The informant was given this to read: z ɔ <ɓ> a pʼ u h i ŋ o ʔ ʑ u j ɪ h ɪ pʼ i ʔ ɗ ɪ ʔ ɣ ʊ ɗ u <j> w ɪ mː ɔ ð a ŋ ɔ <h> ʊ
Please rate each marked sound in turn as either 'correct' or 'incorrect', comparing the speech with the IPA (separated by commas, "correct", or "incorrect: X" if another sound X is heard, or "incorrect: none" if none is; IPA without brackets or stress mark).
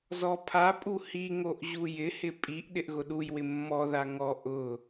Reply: incorrect: pʰ, correct, incorrect: ʔ